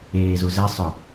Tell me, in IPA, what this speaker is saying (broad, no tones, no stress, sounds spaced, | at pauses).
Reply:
eː z u z ɛ sˤ ʊ